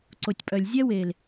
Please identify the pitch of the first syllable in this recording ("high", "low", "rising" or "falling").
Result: low